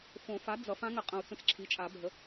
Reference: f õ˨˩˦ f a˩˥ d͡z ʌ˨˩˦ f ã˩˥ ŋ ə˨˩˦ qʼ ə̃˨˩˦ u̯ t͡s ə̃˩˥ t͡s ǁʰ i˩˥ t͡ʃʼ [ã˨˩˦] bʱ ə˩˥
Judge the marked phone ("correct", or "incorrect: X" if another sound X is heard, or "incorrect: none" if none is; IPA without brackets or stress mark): incorrect: a˨˩˦